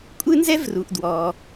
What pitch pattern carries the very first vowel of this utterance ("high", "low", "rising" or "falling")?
high